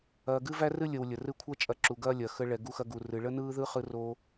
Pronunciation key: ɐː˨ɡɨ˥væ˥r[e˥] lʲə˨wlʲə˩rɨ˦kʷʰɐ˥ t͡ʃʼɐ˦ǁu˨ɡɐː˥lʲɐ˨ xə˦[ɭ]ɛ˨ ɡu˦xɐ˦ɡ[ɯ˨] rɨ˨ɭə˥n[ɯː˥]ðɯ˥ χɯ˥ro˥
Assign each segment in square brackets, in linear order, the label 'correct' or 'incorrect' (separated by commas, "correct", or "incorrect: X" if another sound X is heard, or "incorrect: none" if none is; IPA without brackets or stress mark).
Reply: incorrect: ɨ˥, correct, incorrect: u˨, correct